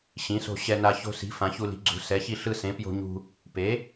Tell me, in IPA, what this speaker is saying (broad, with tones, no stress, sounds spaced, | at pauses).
ɕ ĩ˩˥ s o̤˧ ɕ ɛ˧ n a˧ ç o̤˧ s i̤˩˥ f ã˩˥ ç u˧ l i̤˩˥ ɡ͡ǀ ṳ˩˥ s ɛ˩˥ ç i˧ ɬ ɯ˧ s ẽ˩˥ p j o̤˧ ɲ ṳ˧ | p e˩˥